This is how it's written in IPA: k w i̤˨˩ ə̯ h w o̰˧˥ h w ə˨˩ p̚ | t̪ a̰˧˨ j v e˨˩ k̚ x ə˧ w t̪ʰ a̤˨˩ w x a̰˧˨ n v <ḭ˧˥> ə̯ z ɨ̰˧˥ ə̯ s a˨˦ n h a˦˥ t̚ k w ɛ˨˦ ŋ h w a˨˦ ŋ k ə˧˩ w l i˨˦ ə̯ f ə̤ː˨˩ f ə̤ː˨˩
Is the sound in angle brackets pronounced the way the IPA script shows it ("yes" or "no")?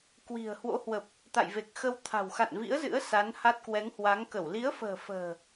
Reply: yes